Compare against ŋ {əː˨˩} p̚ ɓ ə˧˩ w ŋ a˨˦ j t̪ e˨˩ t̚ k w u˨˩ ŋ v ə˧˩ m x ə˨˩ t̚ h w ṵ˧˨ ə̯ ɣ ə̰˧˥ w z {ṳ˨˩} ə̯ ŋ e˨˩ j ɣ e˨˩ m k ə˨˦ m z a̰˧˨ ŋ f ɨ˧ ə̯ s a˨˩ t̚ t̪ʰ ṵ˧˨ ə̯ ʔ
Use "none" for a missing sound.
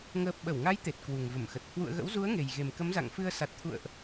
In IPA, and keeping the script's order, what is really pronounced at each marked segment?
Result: əː˨˩, u˨˦

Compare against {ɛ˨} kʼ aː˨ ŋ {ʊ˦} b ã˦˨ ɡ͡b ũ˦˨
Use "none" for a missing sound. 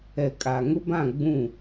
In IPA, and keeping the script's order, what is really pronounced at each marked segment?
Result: ɛ˨, ʊ˦

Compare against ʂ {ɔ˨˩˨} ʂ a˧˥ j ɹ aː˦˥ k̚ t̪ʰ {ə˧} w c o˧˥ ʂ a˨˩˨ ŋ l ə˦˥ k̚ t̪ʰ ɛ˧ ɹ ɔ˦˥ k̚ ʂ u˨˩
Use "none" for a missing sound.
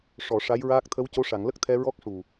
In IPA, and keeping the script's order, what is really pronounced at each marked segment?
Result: ɔ˨˩˨, ə˧˥

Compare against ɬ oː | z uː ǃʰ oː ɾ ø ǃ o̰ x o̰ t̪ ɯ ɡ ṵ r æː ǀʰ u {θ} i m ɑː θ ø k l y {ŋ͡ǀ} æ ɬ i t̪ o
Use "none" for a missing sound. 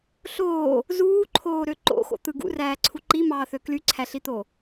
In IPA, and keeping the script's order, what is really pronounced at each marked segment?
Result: ǃ, ǀʰ

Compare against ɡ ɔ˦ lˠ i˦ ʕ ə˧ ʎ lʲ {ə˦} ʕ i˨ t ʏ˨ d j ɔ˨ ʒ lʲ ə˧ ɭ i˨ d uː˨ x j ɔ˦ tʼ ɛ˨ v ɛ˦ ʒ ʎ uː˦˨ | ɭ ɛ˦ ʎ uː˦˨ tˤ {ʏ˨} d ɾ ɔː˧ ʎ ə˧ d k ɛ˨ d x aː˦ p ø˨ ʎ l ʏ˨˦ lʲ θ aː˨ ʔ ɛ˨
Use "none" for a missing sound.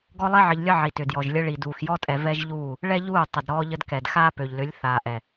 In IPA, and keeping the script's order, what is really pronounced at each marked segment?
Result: ə˦, ə˨

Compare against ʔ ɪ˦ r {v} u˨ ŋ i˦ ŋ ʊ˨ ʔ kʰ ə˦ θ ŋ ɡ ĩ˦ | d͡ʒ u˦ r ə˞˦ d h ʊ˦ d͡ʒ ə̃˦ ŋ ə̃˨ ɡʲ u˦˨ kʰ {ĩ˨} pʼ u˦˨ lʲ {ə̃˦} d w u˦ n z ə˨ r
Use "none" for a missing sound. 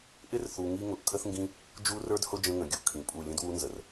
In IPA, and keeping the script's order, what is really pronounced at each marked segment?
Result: θ, ĩ˨, ə̃˦

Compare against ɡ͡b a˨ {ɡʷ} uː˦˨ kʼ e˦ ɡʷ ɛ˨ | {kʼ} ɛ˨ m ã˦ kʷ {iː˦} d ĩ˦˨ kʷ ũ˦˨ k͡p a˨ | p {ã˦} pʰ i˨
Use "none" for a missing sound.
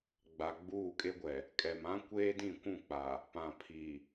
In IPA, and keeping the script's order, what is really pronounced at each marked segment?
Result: ɡ͡b, kʼ, eː˦, ã˨

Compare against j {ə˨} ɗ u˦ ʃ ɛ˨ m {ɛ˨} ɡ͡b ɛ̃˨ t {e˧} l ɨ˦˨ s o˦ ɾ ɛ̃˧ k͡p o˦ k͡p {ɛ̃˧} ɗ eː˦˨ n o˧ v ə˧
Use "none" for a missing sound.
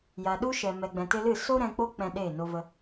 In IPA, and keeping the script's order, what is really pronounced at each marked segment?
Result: a˨, ɛ˨, e˧, ɛ̃˧

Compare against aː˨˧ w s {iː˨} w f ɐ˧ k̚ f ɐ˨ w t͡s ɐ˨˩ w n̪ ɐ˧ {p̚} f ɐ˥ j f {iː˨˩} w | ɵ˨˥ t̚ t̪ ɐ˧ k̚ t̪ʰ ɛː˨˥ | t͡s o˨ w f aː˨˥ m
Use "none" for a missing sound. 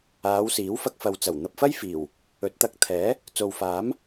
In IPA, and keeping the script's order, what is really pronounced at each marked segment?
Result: iː˨˥, p̚, iː˨˩

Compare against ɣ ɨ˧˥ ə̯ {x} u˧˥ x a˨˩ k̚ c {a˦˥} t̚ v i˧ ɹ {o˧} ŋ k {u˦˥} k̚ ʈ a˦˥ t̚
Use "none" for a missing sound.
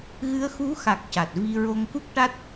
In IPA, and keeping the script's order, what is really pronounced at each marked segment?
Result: x, a˨˩, o˧, u˦˥

